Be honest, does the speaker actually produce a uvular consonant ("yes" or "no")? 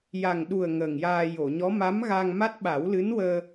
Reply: no